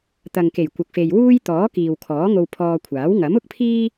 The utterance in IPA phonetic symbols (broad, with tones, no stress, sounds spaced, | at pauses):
t̪ ɐ˨ ŋ k e˨˩ j kʷ ɐ˨ k̚ f e˨ j w uː˥ j t̪ ɔː˨˥ k iː˨ w kʰ ɔː˨˥ ŋ o˧ w pʰ ɔː˧ kʷʰ aː˨˥ w ŋ ɐ˨˥ m ʊ˥ k̚ pʰ iː˥